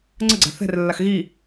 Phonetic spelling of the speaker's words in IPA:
ŋ͡ǀ ə ɡ͡ǀ a̤ θ ɛ̤ r lː a x ɣ i

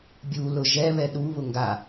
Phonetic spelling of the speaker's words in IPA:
bʲ u l ʊ ʒ ɛ β ɛ ɗ u β ʊ ŋ ɡ a

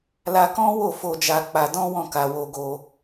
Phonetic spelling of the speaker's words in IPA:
l a˧ k ɔ̃˦ w o˦˨ f o˧ d͡ʒ a˧ k͡p a˧ d ɔ̃˦ w ɔ̃˦˨ k a˧ w o˧ ɡ o˧

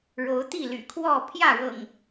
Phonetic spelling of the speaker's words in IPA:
ɻ o˨˦ ʊ̯ t̪ i˥˨ l y̰˨˩ kʰ w ɔ˥˨ pʰ j ä˥˨ ɻ ɤ̰˨˩ ŋ

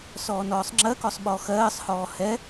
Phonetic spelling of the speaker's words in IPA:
s ɔː n ɔː sˤ ŋ͡ǁ ɜ k ɔ sˤ ɓ ɔ x ɜː sˤ h ɔː h ɛ

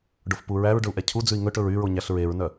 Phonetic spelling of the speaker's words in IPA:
ɖ o f p u ɹ æ ɹ ɖ ɵ u̯ ʔ ɛ cʰ u d͡z ʉ i̯ ŋ ɵ ʈ ɵ ɹ y ɹ o ɲ æ ɬ ɹ e ɹ n œ

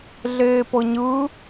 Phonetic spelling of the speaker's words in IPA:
ɮ eː p ɤ ɲ ɯ

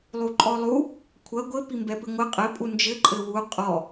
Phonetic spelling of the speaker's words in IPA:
lˠ u ǃʼ ɔ lˠ u | kʷʰ ɐ ɡʷ ɘ p i m b ɛ p ɨ ŋʷ ɨ qʼ ɘ pʼ u n d͡ʒ ɘ ǃʼ ɘ w u qʼ ɔ

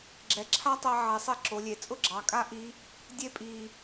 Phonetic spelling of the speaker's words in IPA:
ɡ͡ǁ ɛ˩ ǁʰ a˥ tˤ ɛ˧ ʕ ɛ˩˧ sˤ i˧ ǁ o˩˧ lʲ e˩˧ t͡sʼ ʊ˥ ɡ͡ǁ ɑ˩˧ kʼ a˥ ʔ i˧˥ | dʲ e˧ pʼ i˩

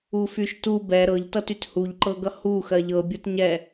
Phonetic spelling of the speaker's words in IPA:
u f y ʃ t u b ɛ ɾ ɤ ʎ t ʌ t y t h u ʎ ǃ ɤ ɡ ʌ h u x ɜ ʎ ɤ bʲ ɤ t ɲ ɛ

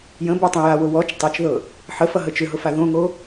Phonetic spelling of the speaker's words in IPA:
j ə̃ b o tˤ ə̃ j a w ʊ w ɔ t͡ʃ tˤ ɤ t͡ʃ ð ɤ | ħ ə f ʌ ɦ ə t͡ʃ ʏ ɦ ʊ f a ð õ ŋ o

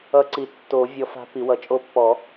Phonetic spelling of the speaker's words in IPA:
ʌ˧˥ ǀ i˨˩˦ tː o˨˩˦ vʲ ɔ˧˥ f a̤˧˥ p i˨˩˦ w ʌ˨˩˦ t͡ʃʼ o˧˥ pː ɔ˨˩˦

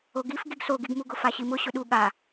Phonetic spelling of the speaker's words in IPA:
o ɡ i f ɡ i ɡ s o ɡ i ɡ m u ɡ ʊ f a ɕ i m ʊ ɕ ʊ ɗ u ɠ a

